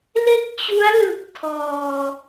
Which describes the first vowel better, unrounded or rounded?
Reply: unrounded